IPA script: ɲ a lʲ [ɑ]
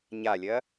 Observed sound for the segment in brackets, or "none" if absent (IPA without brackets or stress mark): ɐ